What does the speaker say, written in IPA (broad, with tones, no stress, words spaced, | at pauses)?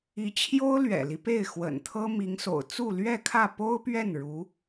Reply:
i˧˥t͡ɕʰjo˥ʊ̯lɥɛ̰˨˩li˦ pe˥˩ɪ̯xwə̰˨˩nt̪ʰɤ˥ mi˧˥ŋso̰˨˩ʊ̯ t͡su˥˧lɥɛ˥˧kʰä˥˩ po˥ʊ̯pɥɛ˥˩n ɻu˧˥